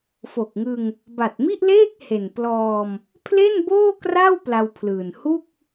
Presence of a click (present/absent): absent